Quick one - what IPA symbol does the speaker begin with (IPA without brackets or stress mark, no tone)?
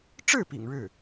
ʈ͡ʂ